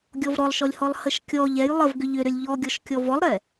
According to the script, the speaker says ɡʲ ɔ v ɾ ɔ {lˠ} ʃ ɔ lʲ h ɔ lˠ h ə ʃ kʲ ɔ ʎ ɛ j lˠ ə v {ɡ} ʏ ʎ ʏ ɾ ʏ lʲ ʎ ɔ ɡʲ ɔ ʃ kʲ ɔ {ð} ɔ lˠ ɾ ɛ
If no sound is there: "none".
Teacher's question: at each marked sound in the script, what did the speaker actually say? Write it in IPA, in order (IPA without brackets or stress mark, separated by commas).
lˠ, ɡ, v